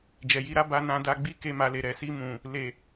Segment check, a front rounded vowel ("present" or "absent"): absent